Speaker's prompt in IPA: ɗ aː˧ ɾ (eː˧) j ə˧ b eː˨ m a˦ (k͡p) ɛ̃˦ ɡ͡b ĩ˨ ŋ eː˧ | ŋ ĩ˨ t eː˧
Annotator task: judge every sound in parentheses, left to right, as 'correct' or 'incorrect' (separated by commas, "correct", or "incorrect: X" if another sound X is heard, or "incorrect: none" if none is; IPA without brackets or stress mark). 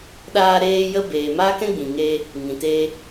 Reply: correct, incorrect: k